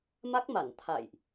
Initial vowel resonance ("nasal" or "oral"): oral